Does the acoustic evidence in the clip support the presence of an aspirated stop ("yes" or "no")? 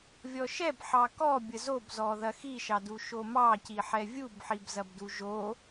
no